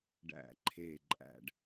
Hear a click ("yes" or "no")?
yes